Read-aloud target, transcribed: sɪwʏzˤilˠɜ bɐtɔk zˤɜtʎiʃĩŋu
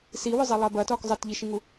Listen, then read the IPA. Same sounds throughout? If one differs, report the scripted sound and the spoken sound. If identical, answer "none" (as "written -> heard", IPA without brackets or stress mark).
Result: ɪ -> i